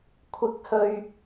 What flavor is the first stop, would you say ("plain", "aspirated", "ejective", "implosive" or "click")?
aspirated